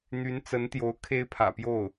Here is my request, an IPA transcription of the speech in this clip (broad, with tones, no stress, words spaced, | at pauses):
n̪y˧˥nt͡sə˧˥nt̪jo˧˥ʊ̯ kʰe˥ɪ̯pʰä̰˨˩pjo˥˩ʊ̯